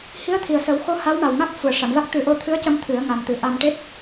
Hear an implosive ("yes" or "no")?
no